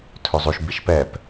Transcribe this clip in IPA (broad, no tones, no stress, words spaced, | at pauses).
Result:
tʰɵzˤʉʃ biʃpɛp